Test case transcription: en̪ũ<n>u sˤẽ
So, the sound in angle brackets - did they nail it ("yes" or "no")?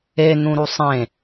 no